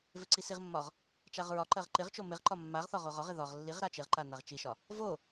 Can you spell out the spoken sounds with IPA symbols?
v ɪ ǀ i s i ʁ mː ɒ ʁ | t͡ʃ a ʁ ɹ ɒ ǃ ɜ ʁ ǃ ɪ ʁ t͡ʃ o m ɪ ʁ ǃ ɒ mː a ʁ θ ɒ ʁ o ʁ ɒ ʁ ɪ ð ɒ ʁ lː i ʁ ɾ a t͡ʃ ɪ ʁ ǃ a n a ʁ t͡ʃ i ʃ ɒ | v o

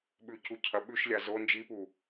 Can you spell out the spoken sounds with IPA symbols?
ɓ ʉ c u cʰ ɐ ɓ ʉ ʃ lʲ a z o n d͡ʒ i p u

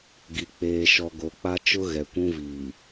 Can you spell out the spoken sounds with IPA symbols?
ɡ i˨ k͡p eː˨ ʃ ɔ˨ ɡ o˨ k͡p a˦ t͡ʃ ʊ˦ ɣ ɛ˨ kʷ ũ˦ v iː˨

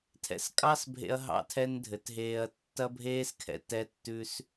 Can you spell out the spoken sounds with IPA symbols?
tʰ ɛ̰˧ s kʼ ɑ˦ s bʱ ḛ˧ ɐ̯ ɦ ɑ̰˦ tʰ ɛ˦ n dʱ ɘ˨ t ɦ eː˧ ɐ̯ tː ɐ˦ bʱ eː˦ s kʰ ɛ̰˧ t ɛ˦ tː ʉ˦ s

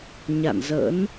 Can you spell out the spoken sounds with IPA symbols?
ɲ a̰˧˨ n z ə̰˧˥ n

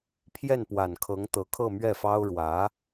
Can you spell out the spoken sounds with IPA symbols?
pʰ j ɛ˥˩ n p w a˨˩ n kʰ ɤ˧˥ ŋ t̪ ɤ˧˥ kʰ ɤ˥˧ m ɥ ɛ˥˩ f ɑ˥ ʊ̯ ɻ w ä˧˥

